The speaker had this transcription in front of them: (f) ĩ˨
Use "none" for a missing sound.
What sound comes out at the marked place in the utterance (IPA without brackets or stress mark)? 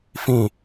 f